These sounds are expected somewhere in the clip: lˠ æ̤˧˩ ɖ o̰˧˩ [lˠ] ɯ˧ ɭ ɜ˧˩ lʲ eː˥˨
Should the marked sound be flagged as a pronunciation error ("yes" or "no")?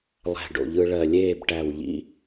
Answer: yes